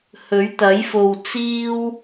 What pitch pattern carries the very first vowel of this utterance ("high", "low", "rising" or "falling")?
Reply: rising